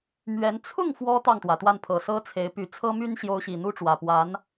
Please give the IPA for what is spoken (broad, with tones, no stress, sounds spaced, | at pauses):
m ɥ ɛ˧˥ n t͡sʰ ʊ˥˩ ŋ f w ɔ˥ t̪ ɑ˥˩ ŋ t̪ w ä˩ t̪ w a˥˩ n pʰ ɤ˨˩ s ɤ˥ t͡sʰ e˧˥ ɪ̯ p y˨˩ t͡sʰ ɤ˥ m y˥ n ɕ j o˧˥ ʊ̯ ɕ i˨˩ n̪ u˥ ʈ͡ʂ w ä˨˩ p w a˧˥ n